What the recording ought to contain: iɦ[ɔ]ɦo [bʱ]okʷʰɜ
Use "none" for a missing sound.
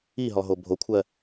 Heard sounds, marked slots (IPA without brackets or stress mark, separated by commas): ɔ, bʱ